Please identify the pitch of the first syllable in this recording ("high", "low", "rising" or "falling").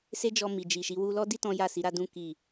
high